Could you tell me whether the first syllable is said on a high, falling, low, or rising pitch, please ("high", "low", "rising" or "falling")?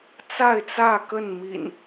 falling